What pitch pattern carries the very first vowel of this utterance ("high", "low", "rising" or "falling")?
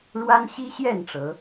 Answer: high